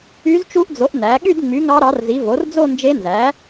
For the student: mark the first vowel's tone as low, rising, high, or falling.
rising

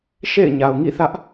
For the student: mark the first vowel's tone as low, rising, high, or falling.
falling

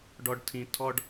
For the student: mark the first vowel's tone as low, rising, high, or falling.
low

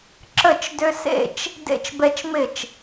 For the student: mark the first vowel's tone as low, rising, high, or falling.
falling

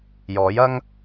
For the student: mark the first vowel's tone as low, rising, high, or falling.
rising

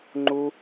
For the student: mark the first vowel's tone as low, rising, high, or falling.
high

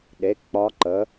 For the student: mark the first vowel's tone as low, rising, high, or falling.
rising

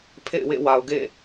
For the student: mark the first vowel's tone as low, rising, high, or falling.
falling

